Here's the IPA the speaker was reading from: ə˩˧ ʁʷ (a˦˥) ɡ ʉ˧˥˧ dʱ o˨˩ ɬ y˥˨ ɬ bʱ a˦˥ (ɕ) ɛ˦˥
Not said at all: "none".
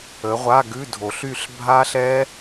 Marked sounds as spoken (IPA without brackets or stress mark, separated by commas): a˧˥˧, ɬ